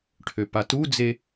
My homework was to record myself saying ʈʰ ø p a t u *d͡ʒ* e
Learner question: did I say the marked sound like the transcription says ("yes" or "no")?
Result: no